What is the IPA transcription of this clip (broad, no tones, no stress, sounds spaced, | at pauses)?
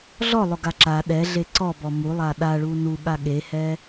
ɮ ɔ lˠ ʊ ɡ a ǁ a ɗ ɛ ɮ e ǀ ɔ b ɔ m u lˠ a ɗ a ɭ u n u ɠ a ɠ e h ɛ